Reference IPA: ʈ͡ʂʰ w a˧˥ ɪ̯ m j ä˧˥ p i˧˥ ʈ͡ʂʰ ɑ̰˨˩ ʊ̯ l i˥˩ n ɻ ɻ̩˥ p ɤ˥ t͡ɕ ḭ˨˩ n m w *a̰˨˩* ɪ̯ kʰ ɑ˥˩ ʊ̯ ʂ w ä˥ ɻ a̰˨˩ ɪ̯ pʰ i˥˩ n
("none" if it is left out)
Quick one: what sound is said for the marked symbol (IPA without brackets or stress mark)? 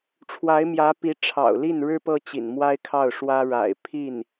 a˥